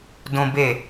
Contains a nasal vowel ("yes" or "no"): yes